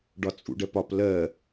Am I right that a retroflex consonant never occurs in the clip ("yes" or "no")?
no